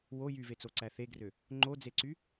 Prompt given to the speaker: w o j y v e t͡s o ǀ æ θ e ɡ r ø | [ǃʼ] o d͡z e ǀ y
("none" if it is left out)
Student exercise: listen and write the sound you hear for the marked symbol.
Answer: ŋ͡ǃ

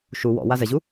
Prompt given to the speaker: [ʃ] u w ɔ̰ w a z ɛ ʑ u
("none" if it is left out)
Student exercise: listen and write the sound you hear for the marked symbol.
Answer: ʃ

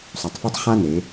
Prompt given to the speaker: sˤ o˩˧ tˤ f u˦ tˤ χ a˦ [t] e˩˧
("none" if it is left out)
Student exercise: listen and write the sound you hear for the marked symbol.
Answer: n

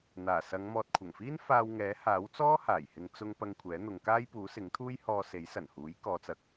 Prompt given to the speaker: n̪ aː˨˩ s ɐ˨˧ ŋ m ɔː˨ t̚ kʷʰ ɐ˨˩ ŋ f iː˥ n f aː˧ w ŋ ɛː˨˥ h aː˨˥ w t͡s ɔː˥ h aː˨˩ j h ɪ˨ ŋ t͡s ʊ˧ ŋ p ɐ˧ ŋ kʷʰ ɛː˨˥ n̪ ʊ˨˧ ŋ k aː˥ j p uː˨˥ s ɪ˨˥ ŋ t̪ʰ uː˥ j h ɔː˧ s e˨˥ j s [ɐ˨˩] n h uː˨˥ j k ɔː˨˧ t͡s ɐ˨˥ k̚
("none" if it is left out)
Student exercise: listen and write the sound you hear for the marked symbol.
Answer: ɐ˨˩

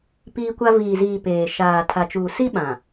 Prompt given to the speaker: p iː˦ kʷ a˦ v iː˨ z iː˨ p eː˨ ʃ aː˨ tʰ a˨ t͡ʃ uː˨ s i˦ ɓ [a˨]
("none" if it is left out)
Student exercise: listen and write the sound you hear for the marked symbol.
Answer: ã˨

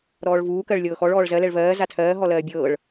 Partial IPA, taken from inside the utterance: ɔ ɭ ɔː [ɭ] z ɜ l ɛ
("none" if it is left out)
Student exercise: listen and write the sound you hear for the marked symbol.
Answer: ɭ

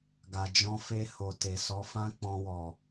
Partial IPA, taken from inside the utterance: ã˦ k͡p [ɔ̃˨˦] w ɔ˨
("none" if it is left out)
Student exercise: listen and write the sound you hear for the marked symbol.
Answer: ɔ̃˧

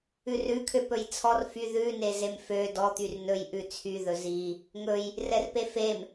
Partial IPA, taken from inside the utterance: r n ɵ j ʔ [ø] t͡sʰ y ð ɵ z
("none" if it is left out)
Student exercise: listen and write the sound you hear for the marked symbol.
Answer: ʉ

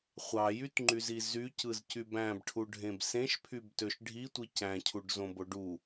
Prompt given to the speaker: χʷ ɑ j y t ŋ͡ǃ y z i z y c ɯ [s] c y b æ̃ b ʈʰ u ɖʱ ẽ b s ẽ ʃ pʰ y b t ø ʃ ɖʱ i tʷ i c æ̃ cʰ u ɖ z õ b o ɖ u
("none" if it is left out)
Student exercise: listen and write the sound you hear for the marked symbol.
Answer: z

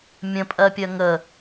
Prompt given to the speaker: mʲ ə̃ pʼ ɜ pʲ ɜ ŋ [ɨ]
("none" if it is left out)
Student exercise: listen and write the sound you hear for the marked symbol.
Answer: ə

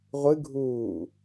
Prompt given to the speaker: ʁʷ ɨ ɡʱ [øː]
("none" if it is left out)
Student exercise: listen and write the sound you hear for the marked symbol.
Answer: uː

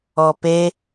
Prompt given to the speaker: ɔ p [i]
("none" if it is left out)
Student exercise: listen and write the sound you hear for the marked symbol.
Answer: e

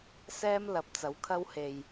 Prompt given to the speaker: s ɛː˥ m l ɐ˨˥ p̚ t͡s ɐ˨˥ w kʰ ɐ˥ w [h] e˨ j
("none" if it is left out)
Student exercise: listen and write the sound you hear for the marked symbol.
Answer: h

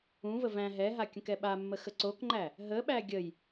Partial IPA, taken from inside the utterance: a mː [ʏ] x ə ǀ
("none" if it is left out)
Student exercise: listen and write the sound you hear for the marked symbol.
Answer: ə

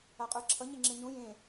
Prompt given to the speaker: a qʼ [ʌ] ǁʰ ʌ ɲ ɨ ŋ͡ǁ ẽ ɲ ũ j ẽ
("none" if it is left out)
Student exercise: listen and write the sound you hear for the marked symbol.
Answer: ə˞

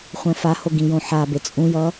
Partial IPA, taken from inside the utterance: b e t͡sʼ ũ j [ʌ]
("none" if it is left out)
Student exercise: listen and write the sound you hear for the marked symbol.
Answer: ʌ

